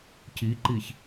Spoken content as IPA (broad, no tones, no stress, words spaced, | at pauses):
ciǃiç